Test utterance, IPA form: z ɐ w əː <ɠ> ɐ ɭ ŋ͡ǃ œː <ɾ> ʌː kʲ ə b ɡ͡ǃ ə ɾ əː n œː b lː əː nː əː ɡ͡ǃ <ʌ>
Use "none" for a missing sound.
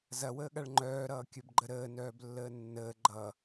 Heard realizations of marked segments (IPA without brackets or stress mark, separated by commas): ɠ, ɾ, ʌ